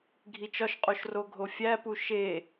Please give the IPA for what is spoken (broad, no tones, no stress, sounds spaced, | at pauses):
ɡʱ i t͡ʃ ɒ ʃ qʼ o ʃ r o ɡʱ o fʲ æ p u ʃ e